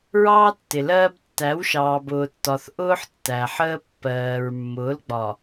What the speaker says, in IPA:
ɹ ɑː˦ tː ɪ˨ l ɜː˦ b tː æ˨˦ w ʃ ɑː˨ b ʊː˨ tː ɒ˨ θ ʔ ʊː˦ ħ tː æ˨ ħ əː˦ pː ɜː˨ ɹ mː ʊː˨˦ l ɡ͡b ɒ˨

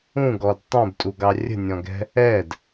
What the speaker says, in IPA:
ũ ɡ ɔ d tˤ ũ b tʼ u ɡ ɑ rʲ ə̤ nʲ ɔ̃ ɡ ɛ̤ | ɛ d

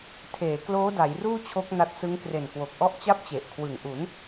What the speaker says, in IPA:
tʰ eː˩˦ k l oː˦˥ d a˩˦ j r uː˥˩ t͡ɕʰ o˦˥ k̚ n a˦˥ t̚ s ɯ˦˥ ŋ k r e˨˩ n k w o˨˩ k̚ ʔ ɔ˦˥ ʔ t͡ɕ a˥˩ p̚ t͡ɕ e˨˩ ʔ kʰ w ɯ˨˩ ŋ ʔ u˩˦ n

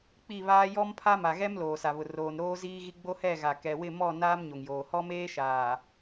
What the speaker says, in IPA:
k͡p i˦˨ β aː˦ j ɔ˦ m pʰ a˦ m a˨ ɣ ɛ˦ m l oː˨ s a˨ β ʊ˨ r oː˨ n ɾ oː˦ z iː˦ ɣ i˦ ɡ͡b o˦ h ɛ˦˨ ɣ a˨ k ɛ˨ w ɪ˦˨ m ɔ˦˨ n aː˦ m ɲ o˨ ŋ j oː˨ h ɔ˦ m eː˦ ʃ aː˨

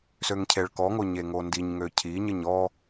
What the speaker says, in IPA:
s ø ŋ cʰ e ɭ k ɔ ŋ o ɲ e ŋ o n d i ɲ ŋ ø cʰ i ɲ ə ɲ ɔ

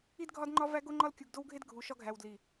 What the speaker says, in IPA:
i˦ d ɡʱ ɒ˦ d ŋ͡ǃ ɒ˦ v æ˦ ɡ o˦ ŋ͡ǃ ɒ˦ l kʲ u˨ ɡ d o˦ w ɡʱ e˦ d ɡʱ u˨ ʃ ɒ˦ ɡʱ æ˨ w d l i˨

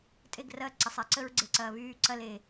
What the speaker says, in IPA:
tʼ e˦˨ ɡ r ɐː˦˨ ǀ ɐ˨ sˤ ɛ˨ ǀ ə˦ ɹ ɡ͡ǀ e˨ ǀ ɐː˨ β yː˦˨ ǀ ɐ˦ l e˨

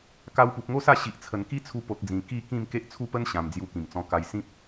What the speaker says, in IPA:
k a˧ w p u˨ p̚ ŋ o˦ s a˥˧ ɕ i˨ ʔ t͡sʰ ə˨˩ n k i˦ t͡sʰ u˧ p o˨ t̚ d͡z ĩ˨˩ k i˥˧ k ĩ˥˧ m k e˦ ʔ t͡sʰ u˦ p ə˦ n ɕ ã˨˩ m d͡z j u˧ k ĩ˨˩ m t͡s ɔ̃˧ k a˧ j s ĩ˦ p̚

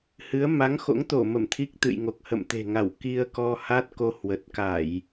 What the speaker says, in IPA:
h ɨ˨˦ ə̯ m a˨˦ ŋ x o̰˧˥ ŋ t̪ o˧˩ m ə˧˩ m t̪ʰ i˦˥ k̚ t̪ ɨ̰˧˨ j ŋ o˨˩ k̚ h ə̰˧˨ m t̪ e̤˨˩ ŋ a˧˩ w k i˧ ə̯ k ɔ˧ h a˦˥ t̚ k o˧ h w ə˨˩ t̚ k a˧˩˨ j

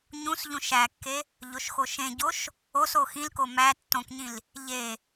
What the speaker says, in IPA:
ɲ ũ s ʎ ũ ʃ æ kː e | ʎ o ʃ x o ʃ ẽ ɟ o ʃ | o s o x ĩ l k o m æ tː õ k ɲ ĩ l | ʎ e

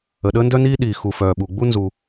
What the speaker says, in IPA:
ə˩ ɗ əː˥ n d œ˥ n iː˥ ɗ iː˩ x u˩ f œː˩ ɓ u˩ ɡ͡b u˥ n z u˩

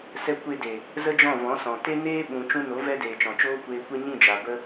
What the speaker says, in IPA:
s ɛ˧ kʷ e˧ d e˨ | z ə˦ d͡ʒ ɔ̃˦˨ v ɔ̃˨˦ s ɔ̃˨ t e˦ n eː˦ ɓ ũ˨ t͡ʃ ũ˧ n o˨˦ v ɛ˦ d eː˨ t͡ʃ ɔ̃˨ t͡ʃ oː˦ kʷ eː˧ kʷ e˦ ɲ ĩ˦˨ d͡ʒ a˨ b ə˧

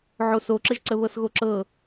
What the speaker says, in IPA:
ʕ o s o ǁ ə ʒ ǀ ə β ɤ s ɣ o ǁ ɤ

